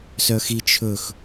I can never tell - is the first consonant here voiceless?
yes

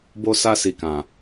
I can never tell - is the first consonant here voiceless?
no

